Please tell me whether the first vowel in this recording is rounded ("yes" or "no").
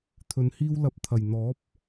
yes